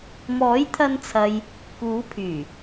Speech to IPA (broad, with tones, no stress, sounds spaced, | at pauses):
m ɔː˨˥ j t̪ʰ ɐ˧ n t͡sʰ ɐ˨ j | k uː˨˥ pʰ yː˨˩